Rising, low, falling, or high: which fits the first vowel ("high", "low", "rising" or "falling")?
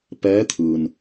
rising